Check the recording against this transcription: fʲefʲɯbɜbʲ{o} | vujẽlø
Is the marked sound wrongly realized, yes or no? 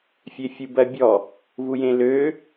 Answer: yes